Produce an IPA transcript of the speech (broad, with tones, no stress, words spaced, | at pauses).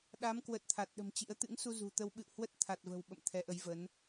ɗa˨˦mkwə˨˩t̚ t̪ʰa˨˩t̚ɗə̤˨˩mt͡ɕḭ˧˥ə̯ t̪ɨ̰˧˥ŋ su˧zṳ˨˩t̪ə˧w ɓɨ̰˧˨whwə˦˥t̚ t̪ʰa˨˩t̚və̤˨˩w ɓə̰˧˨mt̪ʰɛ˨˦ʔə˨˦jvə˨˦n